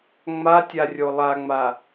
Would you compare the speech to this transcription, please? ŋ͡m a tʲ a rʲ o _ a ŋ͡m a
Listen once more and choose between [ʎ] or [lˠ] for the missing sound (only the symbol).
lˠ